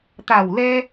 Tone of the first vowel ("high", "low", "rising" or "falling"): low